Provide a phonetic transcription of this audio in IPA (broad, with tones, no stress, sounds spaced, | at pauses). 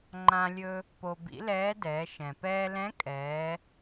ŋ͡ǃ ã˧ lʲ ɵ˧ | p o˧ b ḭ˧˥ l ɛː˧˥ d ɛː˩˧ ʃ ɛ̃˩ p ɛː˧ l ɛ̃˧˥ kʼ ɛː˩˧